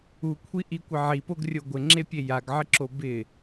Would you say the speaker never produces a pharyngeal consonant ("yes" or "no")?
no